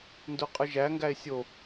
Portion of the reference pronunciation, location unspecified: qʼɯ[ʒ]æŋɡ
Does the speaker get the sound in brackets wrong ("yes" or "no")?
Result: no